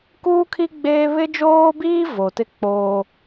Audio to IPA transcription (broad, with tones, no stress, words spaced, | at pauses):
kuː˦kʰi˦ ɡ͡beː˦ βɪ˦d͡ʒoː˦biː˦ vo˨tɪ˦ k͡poː˦